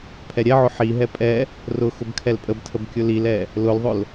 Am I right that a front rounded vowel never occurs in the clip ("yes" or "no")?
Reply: yes